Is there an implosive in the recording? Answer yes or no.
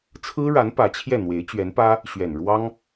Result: no